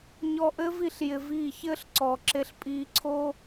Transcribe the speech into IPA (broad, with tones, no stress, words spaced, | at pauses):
ɲɔ˧ʔɘː˦vi˧ɬ jɪ˧viː˦˨ çɘː˦ɬǀɔː˨ǁe˧ɬ pʼiː˧ǀʰoː˦